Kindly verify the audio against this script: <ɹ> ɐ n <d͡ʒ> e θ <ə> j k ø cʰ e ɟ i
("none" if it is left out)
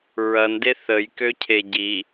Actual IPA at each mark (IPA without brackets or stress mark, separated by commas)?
ɹ, d, ə